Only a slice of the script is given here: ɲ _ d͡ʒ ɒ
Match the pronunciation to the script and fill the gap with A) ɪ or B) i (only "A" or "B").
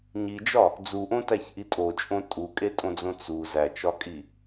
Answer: B